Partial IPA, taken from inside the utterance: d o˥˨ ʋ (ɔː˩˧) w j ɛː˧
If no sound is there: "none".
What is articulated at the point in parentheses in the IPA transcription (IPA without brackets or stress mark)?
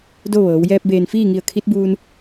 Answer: ɤː˩˧